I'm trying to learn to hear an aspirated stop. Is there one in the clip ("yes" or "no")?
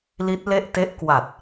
no